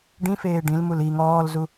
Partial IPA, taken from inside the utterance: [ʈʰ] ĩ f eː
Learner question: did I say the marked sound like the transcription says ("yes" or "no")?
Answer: no